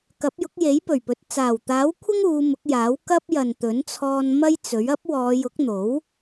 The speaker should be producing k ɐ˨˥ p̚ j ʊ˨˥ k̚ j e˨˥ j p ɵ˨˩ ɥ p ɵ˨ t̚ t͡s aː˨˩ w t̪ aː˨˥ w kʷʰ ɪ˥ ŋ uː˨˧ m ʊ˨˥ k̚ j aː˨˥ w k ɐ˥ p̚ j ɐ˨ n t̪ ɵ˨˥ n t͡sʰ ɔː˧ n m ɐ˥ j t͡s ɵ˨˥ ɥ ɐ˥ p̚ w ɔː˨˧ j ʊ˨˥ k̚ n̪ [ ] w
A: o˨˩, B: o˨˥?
B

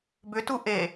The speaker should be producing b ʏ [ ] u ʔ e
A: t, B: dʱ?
A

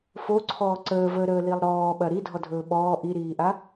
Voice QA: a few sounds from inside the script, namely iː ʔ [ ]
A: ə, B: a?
B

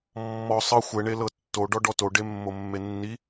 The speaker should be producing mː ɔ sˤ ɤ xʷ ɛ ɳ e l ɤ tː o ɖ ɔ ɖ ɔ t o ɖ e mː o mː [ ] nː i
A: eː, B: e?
B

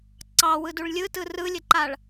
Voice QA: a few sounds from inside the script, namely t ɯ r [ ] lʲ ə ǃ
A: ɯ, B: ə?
A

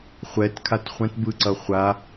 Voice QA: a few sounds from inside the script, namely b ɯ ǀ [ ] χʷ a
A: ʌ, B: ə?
A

